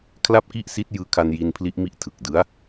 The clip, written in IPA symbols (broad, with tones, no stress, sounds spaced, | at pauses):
kʰ l a˥˩ p̚ k i˥˩ ʔ s i˦˥ t̚ j ɯː˦˥ kʰ a˧ n j i˧ n pʰ l i˦˥ ʔ m i˦˥ ʔ tʰ ɯ˨˩ k̚ d ɯ˦˥ a̯